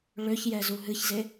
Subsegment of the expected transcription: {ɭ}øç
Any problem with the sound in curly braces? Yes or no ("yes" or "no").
no